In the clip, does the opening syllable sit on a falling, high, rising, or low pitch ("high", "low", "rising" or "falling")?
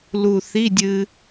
low